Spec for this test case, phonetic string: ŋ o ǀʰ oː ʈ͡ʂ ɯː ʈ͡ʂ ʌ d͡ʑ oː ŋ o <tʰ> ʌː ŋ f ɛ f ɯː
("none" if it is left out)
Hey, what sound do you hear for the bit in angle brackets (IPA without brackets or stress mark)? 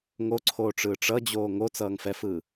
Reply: t͡s